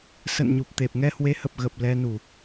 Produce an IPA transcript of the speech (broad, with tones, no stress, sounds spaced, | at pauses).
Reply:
s ə̰˧˨ n ɲ u˨˩ p̚ t̪ e˨˩ p̚ ŋ ɛ˧ h w e˨˦ h ə˨˩ p̚ ɣ ə˨˩ p̚ l ɛ˧ n u˧˩˨